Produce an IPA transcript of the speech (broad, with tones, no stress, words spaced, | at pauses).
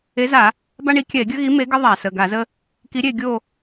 e˨˥za˧˩˧ | ba˦ɳi˨˥ kʲɛ˧˩˧e̯ɡʲə˦ɣi˨˥ me˨˥ɡɘ˦ ðˤa˧˩˧sə˩˧˩ ɡa˧˩˧zə˦ | ki˨˥ɾʲe˦˨ ɡʲo˦˨